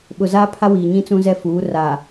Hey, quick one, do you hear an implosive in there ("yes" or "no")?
yes